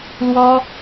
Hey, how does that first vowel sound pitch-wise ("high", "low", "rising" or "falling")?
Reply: high